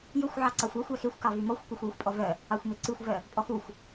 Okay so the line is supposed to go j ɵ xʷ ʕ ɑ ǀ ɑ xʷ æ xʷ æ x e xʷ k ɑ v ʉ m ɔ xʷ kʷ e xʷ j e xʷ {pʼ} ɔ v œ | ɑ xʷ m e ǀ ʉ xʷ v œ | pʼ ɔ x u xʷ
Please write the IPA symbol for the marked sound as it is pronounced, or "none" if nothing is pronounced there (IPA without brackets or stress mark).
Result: pʼ